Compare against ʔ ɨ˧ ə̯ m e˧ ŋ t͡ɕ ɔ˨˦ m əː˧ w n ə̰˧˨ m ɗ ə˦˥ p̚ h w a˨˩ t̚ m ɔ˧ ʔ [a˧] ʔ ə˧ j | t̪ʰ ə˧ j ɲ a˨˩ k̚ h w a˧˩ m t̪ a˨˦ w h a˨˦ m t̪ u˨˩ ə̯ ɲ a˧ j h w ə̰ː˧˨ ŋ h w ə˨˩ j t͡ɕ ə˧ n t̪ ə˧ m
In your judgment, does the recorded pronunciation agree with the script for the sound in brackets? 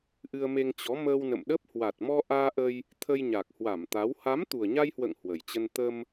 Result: no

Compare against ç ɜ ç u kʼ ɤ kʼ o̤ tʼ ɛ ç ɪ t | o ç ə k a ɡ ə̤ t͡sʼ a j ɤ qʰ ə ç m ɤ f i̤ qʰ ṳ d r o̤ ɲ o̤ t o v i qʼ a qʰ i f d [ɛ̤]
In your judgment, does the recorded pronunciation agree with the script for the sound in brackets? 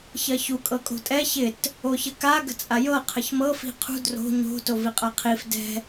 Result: yes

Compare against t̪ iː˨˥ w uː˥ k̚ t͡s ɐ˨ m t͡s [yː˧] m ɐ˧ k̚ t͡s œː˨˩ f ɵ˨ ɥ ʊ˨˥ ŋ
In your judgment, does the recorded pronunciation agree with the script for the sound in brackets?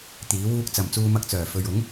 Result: no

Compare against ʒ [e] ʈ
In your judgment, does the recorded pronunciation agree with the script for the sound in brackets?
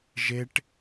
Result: yes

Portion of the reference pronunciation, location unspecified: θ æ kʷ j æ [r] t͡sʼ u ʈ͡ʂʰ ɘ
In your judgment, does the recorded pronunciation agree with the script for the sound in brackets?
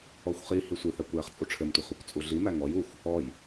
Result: no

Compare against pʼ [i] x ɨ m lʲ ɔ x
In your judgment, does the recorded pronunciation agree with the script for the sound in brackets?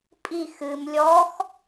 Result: yes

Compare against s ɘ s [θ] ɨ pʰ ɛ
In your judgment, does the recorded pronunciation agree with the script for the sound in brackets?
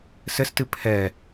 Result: no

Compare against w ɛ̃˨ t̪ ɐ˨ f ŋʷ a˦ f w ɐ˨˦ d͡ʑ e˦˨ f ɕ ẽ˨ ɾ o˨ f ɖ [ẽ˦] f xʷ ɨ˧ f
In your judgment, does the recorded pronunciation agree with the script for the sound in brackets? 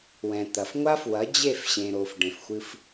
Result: no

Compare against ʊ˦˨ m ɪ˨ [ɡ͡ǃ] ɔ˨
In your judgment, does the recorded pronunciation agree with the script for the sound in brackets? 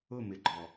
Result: yes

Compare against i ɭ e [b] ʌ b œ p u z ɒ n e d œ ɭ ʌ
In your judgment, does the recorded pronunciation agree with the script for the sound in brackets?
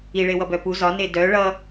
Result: no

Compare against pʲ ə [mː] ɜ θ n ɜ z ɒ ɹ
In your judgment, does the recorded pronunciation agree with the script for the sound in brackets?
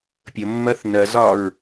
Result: yes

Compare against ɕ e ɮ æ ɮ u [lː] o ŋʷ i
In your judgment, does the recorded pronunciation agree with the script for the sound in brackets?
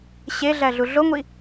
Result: no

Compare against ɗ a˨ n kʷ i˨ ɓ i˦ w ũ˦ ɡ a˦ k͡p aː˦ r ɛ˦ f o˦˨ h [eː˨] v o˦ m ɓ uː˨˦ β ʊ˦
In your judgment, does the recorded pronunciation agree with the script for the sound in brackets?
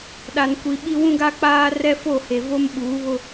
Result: no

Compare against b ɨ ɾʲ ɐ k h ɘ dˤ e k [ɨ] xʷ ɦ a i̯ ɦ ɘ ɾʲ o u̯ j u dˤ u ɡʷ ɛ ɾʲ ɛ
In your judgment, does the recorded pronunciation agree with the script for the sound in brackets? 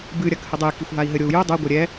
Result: no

